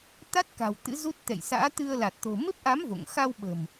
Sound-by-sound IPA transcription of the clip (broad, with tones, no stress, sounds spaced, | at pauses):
t̪ a˦˥ t̚ k a̤˨˩ w t̪ ɨ̰˧˥ z u˦˥ t̚ t̪ ɛ̰˧˨ j s a̰ː˧˥ t̪ ɨ˧ ə̯ l a˨˩ t̚ t̪ o̤˨˩ m e˦˥ p̚ ʔ a˨˦ m v o̰˧˨ ŋ x a˧ w ɓ ə̤˨˩ m